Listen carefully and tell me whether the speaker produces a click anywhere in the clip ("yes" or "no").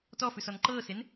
yes